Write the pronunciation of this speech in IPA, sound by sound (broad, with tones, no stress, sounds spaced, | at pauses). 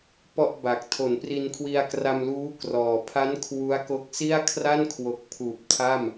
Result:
p ɔ˥˩ ʔ b a˨˩ k̚ tʰ o˩˦ n p r i˧ n kʰ w i˧ a̯ k r a˧ m l uː˦˥ k r ɔː˨˩ pʰ a˦˥ n kʰ w u˦˥ a̯ k o˦˥ k̚ s i˥˩ a̯ kʰ r a˥˩ n kʰ w o˨˩ k̚ pʰ uː˨˩ p̚ tʰ a˥˩ m